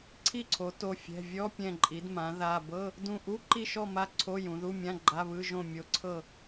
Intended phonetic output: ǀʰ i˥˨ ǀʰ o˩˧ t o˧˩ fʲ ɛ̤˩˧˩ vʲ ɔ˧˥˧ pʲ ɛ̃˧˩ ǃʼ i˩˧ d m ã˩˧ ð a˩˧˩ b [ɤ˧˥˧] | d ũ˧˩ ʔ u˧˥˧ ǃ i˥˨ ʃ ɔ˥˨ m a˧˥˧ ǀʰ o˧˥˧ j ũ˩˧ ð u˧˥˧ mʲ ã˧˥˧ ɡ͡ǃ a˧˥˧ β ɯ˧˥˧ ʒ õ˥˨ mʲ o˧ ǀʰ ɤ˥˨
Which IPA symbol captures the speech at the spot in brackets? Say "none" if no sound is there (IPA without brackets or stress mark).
ɤ˧˥˧